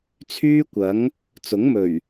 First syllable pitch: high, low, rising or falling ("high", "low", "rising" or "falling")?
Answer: high